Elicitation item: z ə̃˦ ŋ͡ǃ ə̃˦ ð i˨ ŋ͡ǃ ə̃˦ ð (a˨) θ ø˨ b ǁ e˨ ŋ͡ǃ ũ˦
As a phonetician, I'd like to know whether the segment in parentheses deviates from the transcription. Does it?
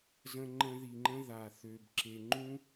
no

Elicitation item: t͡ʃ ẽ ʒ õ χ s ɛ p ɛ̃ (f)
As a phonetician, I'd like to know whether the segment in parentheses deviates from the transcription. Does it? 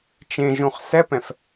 no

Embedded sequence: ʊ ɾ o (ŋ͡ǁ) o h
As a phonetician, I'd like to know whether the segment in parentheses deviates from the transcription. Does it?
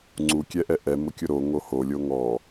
yes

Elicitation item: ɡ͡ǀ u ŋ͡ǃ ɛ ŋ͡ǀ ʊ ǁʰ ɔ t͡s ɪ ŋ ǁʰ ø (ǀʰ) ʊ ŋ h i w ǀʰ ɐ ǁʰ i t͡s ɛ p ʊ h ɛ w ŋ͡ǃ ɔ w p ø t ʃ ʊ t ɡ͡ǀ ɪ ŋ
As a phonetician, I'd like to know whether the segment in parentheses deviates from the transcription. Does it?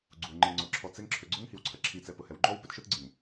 yes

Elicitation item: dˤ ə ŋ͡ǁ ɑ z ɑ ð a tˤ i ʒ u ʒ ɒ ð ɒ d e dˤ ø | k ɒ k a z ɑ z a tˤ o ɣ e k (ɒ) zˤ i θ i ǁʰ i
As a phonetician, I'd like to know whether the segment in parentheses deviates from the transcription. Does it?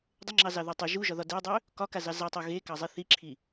yes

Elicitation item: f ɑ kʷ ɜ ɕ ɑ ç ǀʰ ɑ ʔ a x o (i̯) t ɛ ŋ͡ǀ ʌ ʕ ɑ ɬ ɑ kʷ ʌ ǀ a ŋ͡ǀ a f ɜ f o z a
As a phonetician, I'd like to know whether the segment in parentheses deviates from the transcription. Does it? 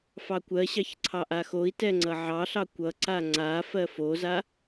no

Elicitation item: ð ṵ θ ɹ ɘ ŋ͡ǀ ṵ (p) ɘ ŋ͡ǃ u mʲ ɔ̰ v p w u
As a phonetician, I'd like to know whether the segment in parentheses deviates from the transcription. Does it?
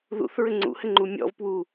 yes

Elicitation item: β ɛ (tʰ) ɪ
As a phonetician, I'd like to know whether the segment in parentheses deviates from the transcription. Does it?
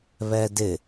yes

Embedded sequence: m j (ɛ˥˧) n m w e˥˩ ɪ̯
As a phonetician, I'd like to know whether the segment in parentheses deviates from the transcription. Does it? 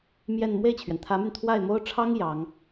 no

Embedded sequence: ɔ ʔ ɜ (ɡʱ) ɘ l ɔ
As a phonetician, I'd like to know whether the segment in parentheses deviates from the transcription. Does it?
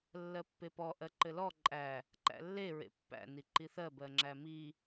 yes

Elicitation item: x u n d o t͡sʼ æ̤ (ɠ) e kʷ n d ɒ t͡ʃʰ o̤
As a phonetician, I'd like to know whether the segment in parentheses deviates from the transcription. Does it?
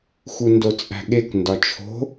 no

